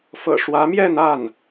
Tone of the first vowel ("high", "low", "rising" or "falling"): low